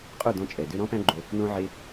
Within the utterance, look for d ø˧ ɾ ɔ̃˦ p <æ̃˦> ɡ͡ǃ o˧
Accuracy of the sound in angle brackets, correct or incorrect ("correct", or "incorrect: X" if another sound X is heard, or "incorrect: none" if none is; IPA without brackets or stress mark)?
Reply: correct